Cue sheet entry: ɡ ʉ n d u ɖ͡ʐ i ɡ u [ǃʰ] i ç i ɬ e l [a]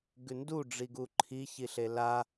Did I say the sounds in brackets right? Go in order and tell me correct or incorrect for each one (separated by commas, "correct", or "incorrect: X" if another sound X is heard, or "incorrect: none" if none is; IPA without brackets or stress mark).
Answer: correct, correct